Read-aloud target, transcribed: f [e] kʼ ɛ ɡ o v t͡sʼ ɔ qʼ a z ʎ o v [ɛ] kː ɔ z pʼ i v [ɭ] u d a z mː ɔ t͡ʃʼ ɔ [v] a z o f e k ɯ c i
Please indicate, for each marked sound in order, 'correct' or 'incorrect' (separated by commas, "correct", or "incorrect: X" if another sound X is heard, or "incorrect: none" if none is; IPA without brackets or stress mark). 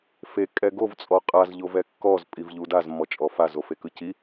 correct, correct, incorrect: ʎ, incorrect: f